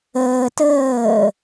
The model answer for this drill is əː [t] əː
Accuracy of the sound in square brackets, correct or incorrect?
correct